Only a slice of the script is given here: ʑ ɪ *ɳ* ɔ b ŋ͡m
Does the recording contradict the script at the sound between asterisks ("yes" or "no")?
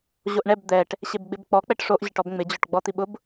yes